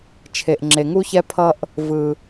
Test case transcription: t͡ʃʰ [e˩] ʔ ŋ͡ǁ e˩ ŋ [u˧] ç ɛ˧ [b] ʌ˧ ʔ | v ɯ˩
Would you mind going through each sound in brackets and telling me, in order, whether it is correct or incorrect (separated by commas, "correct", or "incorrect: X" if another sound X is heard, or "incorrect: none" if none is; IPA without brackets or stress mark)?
correct, correct, incorrect: pʰ